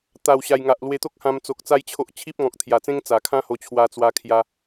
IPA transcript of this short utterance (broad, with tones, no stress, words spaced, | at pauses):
t̪a˨˩wɕa˨˩jŋa˨ʔ lwe˧t̪o˦k̚hã˧m t͡so˨k̚t͡sa˦jt͡ɕʰo˦ʔ t͡ɕʰi˦p̚ŋɔ̃˨k̚t̪ʰja˨˩t͡sẽ˦ŋ t͡sa˨˩kʰã˦ho˧t͡ɕʰwa˧ t͡swa˧kʰja˧